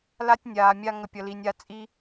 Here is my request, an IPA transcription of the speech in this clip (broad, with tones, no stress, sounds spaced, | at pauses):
l a˦ tʲ nʲ aː˨ mʲ a˧ ŋ ə˨ pʲ ʌ˨ l i˨ nʲ a˧ t͡sʼ i˦